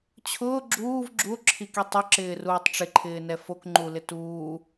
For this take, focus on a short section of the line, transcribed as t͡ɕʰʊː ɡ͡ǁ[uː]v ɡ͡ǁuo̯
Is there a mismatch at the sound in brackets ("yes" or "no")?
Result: no